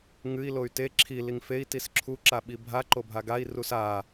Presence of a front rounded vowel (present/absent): present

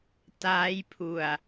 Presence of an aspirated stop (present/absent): present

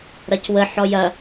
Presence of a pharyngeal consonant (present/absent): present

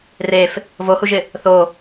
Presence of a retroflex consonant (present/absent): absent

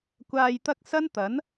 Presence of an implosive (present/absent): absent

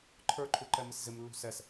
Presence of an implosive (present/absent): absent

